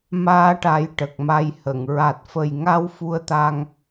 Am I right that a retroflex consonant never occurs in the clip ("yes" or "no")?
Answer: no